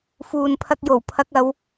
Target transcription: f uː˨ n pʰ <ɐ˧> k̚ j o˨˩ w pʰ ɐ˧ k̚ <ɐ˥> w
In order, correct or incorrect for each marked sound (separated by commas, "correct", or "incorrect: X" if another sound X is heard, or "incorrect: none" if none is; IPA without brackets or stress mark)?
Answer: correct, incorrect: ɐ˨˧